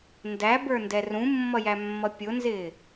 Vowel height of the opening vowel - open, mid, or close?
open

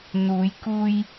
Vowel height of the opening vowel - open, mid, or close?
close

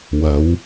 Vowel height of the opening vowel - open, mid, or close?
open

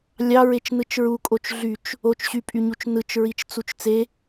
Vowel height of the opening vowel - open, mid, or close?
open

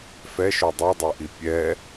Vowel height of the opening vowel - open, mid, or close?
mid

